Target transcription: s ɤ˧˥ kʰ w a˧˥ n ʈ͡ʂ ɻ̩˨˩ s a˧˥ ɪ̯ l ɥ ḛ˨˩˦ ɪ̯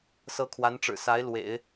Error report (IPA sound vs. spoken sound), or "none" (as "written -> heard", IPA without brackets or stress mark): ɥ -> w